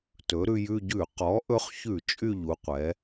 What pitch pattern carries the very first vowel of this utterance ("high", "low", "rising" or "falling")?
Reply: rising